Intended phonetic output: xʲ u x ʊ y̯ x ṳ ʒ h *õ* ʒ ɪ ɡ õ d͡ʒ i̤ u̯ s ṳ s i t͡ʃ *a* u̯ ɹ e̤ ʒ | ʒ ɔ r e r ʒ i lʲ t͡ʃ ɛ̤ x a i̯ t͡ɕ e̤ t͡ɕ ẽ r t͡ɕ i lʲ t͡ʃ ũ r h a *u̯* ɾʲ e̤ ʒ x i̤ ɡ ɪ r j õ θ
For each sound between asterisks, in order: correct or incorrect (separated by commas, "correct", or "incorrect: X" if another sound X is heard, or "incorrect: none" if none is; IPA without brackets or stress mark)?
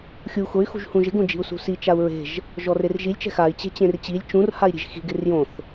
incorrect: ũ, correct, incorrect: i̯